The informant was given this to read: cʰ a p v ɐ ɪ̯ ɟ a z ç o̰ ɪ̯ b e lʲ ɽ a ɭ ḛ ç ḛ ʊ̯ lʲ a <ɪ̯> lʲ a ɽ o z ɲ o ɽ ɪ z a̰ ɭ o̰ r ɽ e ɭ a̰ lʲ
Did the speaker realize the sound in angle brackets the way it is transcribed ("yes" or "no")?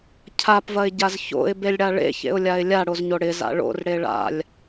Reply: yes